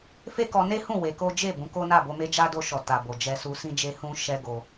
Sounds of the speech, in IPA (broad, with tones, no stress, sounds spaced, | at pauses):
f e˦ k ɔ˧ n e˦ h ũ˦˨ w e˨˦ k o˦ d͡ʒ e˦˨ b ũ˨˦ k o˦ n a˦˨ b o˧ m e˧ d͡ʒ a˦ d o˧ ʃ ɔ˨ t a˨ b o˨ d͡ʒ ɛ˧ s u˧ s ĩ˧ d͡ʒ e˧ h ũ˦ ʃ ɛ˦ ɡ o˧